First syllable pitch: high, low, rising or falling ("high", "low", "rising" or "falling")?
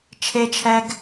high